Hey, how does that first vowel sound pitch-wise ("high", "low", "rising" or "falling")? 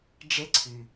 high